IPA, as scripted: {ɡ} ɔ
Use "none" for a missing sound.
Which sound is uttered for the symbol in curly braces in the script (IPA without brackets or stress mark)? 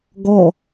ɡ